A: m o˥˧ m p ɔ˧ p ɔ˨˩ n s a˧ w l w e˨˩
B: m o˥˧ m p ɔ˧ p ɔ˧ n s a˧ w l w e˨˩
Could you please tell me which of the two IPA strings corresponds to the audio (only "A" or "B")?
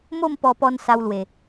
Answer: B